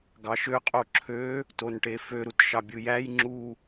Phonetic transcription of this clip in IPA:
ɡ ɑ ʃ ø qʼ o ǁʰ ø | t o n ʈ e f ø ɾ u t ʃ ɑ bʲ ɯ j æ j ŋ͡ǁ u

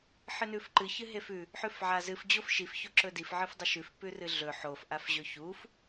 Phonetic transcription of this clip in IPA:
ħ ɨ n ʉ f ǃ ɨ ç ɨ ɦ e f ʉ | ħ ʉ f ʕ a z ɨ f d͡ʑ o f ʃ i f ç o ǁ ɵ d i f ʕ ɨ f dˤ ɵ ʃ ʉ f p ʉ r ɨ ɮ ɵ ħ o f ʔ a f ʑ ɵ ç u f

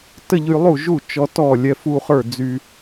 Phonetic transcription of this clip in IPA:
t ə˥˧ ʎ y˧ lˠ u˥˩ ʒ u˥˩ t͡ʃ ɔ˧ t ɔ˥˩ lʲ ɛ˧ f u˥˧ χ ə˞˥˩ d͡z y˧

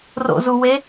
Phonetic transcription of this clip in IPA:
r o̰ z u w e

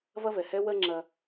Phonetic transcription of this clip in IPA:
v ɐ˥ v ɛ˩ h ɛ˥ w ɜ˥ ŋ͡ǁ ɐ˥

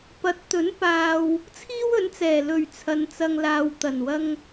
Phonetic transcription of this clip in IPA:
p ɐ˨˥ t̚ t̪ ɵ˨˥ n p aː˨ w | t͡sʰ iː˥ w ɵ˨˥ n t͡s ɛː˨˩ l ɵ˨˩ ɥ t͡sʰ ɐ˨˧ n t͡s ɐ˧ ŋ l aː˧ w t̪ ɐ˨˩ n w ɐ˥ ŋ

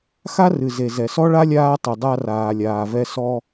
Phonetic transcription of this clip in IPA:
x a˥ r ɨ˩ z e˩ z ɛ˩ s ɔ˥ ɭ a˥ lʲ aː˥ tˤ ɨ˩ dˤ a˥ r aː˩ lʲ aː˩ v ɛ˥ s ɔ˥

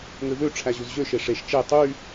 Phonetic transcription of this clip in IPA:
ŋ ø v ø ʈ͡ʂʰ æ ʑ u z ʑ ø ʃ e ʂ e ʃ t͡ʃ e tˤ y

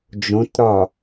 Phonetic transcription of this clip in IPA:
d͡ʒ õ t ɾ ɒ

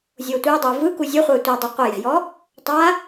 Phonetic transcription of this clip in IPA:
zʲ oː tʷ əː dˤ oː v ɯ k u zʲ ə χʷ əː tʷ ɛ dˤ u qʷ ə j ɛ̤ j ɔ | tˤ a

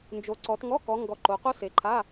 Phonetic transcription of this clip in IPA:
n d͡ʒ o˨˦ ǀ ɔ˨˦ t ŋ ɔ˧˥˧ k ɔ˨˦ ŋ ɡ ɔ˨˦ ǃ o˨˦ q o˥ s e˨˦ ǃʰ a˧˥˧

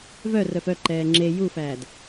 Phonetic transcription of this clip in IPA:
v œ r œ f œ ǃ ɛː ŋ͡ǁ e j u f æː d

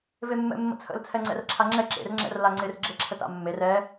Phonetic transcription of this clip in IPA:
v e mː ɛ̰ mː ə̰ t͡sʰ ə̰ l t͡sʰ ɛ ŋ͡ǀ ɛ̰ r ǁʰ a ŋ͡ǁ ɛ ǁ ḛ r ŋ͡ǁ ɛ̰ r l a ŋ͡ǀ ɪ r ɡ͡ǁ e ǁʰ ə t a̰ mː e r ɛ

